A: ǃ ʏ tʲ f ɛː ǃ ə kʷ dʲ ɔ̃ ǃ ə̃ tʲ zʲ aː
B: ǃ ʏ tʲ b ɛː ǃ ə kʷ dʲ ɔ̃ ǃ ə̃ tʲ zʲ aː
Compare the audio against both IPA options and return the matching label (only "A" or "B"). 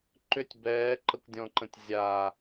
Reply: B